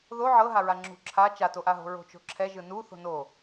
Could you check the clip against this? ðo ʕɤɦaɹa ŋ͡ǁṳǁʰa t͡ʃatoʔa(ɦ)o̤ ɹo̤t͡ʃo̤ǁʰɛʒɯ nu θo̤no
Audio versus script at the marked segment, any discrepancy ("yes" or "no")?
no